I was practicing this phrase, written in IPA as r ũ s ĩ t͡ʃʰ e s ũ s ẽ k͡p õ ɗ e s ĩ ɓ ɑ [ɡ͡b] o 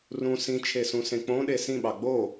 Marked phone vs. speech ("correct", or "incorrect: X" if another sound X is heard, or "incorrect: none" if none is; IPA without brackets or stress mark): correct